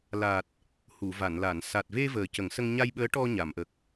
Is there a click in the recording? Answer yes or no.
no